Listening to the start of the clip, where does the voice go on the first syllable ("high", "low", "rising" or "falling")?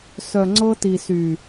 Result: low